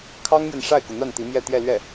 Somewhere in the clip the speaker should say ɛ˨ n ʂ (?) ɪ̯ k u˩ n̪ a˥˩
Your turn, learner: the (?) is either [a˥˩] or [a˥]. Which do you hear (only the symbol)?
a˥˩